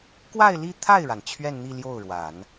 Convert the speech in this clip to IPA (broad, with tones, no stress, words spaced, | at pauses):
kwa˥˧ɪ̯li˥˧t̪ʰa˥˩ɪ̯ɻa˩n t͡ɕʰɥɛ˥˧nn̪i˥˧ ljo˥˩ʊ̯ɻwa˨˩˦n